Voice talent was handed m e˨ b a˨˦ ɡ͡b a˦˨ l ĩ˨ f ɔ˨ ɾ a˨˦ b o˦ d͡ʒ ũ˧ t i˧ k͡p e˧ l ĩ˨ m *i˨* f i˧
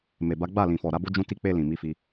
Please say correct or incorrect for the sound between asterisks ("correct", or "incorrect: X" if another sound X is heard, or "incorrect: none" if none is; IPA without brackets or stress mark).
incorrect: i˨˦